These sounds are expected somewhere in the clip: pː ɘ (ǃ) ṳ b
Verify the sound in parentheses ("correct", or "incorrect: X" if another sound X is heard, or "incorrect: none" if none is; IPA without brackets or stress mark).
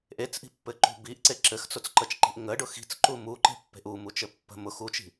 correct